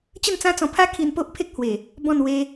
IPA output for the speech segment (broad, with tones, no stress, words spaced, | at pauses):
t͡ɕə˥˧nt͡sã˦t͡sɔ̃˧ pʰa˦kʰi˧n po˦ʔpʰe˦k̚ hwe˨˩ | bɔ̃˥˧n we˧